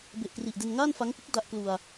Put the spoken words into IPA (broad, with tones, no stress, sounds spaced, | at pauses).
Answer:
b e˨˩ ʔ k r i˨˩ ʔ d e˧ n ŋ aː˥˩ n f a˦˥ ŋ p ɯ˦˥ k̚ d a˦˥ ʔ k l u˧ a̯